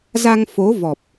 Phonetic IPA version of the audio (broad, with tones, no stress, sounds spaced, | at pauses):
z a˧ ŋ f o˨˦ v ɔ˨˩ p̚